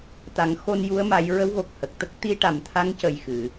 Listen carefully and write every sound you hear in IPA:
t̪ a˨˩˦ ŋ x o˧ n j u˧˥ ə̯ m a˧˥ j ɹ ə˧˥ w ɣ o˨˩ k̚ h ə˨˩ k̚ t̪ ə˦˥ k̚ t̪ i˧ ʈ a˨˩ m t̪ʰ a˧˥ ŋ c ə˨˩ j x ɨ˨˩˨

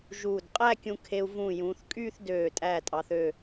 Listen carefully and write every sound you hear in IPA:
ʒ uː˧˩ d qʼ æ˥˧ kʲ ũ˧ kʰ e˧ u̯ v ũ˧˩ j ũ˩˧ θ kʼ yː˥˧ θ d øː˧˩ tʼ æː˧˩ tʼ ɑ˩˧ θ ø˧˩

